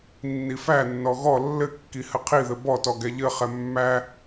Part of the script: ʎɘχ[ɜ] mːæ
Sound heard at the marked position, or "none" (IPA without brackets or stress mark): ɛ